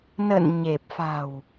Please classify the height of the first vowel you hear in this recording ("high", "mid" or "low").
mid